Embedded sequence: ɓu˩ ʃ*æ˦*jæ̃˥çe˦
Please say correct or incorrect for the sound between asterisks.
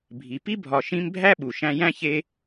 incorrect